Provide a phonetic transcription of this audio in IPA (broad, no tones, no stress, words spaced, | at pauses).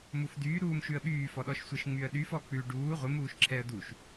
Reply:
mufdyː ɾuːmʃʉə̯ɓyː fɔɗɔʃsʷəʃ ŋ͡myə̯ɗyf ɔk͡pʉ ɖuː ʁʷɪ muːʃǁʰɛə̯duʃ